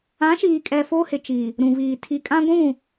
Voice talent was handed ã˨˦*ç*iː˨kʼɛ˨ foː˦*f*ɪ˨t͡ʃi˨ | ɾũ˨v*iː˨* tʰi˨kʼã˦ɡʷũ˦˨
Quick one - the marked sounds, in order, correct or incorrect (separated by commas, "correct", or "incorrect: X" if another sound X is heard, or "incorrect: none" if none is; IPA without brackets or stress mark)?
incorrect: ʃ, incorrect: h, correct